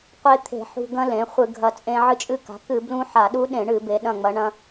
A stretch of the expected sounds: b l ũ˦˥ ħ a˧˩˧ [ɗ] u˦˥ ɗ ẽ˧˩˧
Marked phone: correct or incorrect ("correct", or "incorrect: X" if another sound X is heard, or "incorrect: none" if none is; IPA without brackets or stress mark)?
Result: correct